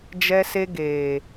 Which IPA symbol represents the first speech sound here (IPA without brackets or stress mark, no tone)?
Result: d͡ʒ